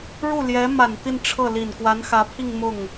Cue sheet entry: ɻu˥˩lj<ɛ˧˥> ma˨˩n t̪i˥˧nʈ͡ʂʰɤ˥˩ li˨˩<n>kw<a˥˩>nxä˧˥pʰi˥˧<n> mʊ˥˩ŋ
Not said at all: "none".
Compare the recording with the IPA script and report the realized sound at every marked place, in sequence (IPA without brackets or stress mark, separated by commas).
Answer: ɛ˧˥, n, a˧˥, ŋ